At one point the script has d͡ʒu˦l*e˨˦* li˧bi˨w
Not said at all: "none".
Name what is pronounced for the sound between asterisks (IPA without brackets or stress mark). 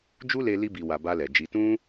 e˧